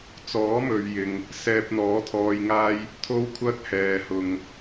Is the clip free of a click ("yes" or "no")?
yes